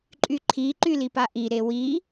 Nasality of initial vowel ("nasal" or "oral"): oral